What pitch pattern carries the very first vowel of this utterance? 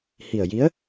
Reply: low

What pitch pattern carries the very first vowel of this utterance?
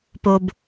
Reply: low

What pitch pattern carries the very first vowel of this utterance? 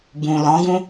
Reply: low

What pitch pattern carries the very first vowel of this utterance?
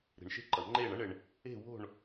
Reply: low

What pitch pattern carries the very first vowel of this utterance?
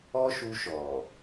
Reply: high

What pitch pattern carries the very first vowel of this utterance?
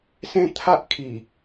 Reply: high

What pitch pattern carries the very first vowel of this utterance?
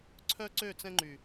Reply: high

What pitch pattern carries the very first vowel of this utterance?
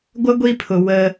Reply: high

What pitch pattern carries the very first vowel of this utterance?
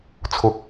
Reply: low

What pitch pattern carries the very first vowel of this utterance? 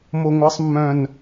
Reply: low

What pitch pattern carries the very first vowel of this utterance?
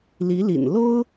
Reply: rising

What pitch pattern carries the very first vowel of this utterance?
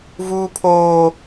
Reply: high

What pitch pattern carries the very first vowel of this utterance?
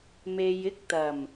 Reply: low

